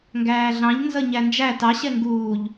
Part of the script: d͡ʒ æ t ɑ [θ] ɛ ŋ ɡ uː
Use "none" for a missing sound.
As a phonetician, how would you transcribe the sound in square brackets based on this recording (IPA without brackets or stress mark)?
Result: ɕ